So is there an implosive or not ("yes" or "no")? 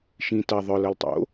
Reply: no